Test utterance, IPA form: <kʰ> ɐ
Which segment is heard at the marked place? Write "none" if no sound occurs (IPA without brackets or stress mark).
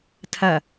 tʰ